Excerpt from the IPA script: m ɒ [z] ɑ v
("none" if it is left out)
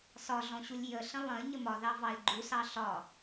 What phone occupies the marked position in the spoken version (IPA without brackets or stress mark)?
ð